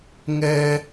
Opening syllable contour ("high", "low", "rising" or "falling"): high